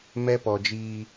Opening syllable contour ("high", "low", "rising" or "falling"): high